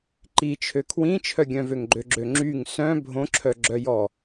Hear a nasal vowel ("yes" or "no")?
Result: yes